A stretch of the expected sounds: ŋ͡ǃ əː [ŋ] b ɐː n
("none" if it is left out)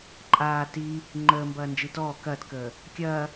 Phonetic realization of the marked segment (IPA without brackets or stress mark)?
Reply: m